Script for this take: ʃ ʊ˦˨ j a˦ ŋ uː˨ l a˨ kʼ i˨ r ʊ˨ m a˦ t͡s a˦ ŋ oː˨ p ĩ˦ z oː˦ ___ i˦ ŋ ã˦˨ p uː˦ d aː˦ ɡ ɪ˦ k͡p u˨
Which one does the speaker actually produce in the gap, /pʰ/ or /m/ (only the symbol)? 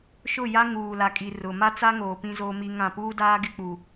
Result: m